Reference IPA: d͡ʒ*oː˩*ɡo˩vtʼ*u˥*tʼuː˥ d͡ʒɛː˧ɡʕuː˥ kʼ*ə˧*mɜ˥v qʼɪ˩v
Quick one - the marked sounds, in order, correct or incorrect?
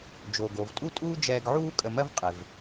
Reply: correct, correct, correct

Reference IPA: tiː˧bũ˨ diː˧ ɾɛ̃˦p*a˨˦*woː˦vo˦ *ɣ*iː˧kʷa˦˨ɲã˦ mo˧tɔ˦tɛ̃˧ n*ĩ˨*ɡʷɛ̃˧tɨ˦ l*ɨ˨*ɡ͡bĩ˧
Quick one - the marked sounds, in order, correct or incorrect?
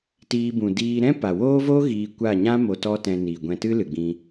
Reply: incorrect: a˨, correct, incorrect: i˨, correct

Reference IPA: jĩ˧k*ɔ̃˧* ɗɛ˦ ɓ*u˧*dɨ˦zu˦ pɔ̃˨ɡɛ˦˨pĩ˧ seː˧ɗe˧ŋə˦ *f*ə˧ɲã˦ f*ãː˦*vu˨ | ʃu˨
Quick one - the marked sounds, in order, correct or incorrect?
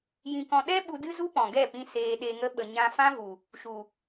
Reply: correct, correct, incorrect: ɓ, incorrect: ã˦

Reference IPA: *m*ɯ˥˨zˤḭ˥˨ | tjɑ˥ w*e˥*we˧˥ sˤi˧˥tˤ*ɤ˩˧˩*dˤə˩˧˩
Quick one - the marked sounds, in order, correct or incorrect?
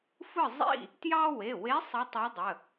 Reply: incorrect: f, incorrect: e˩˧˩, incorrect: ɤ˧˥

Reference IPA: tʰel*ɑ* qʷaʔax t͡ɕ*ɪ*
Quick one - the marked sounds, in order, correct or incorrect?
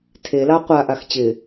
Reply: correct, correct

